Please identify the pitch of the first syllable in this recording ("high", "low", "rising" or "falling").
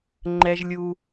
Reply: high